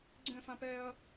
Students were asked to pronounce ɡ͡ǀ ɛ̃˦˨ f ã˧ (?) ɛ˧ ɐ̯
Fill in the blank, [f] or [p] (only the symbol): p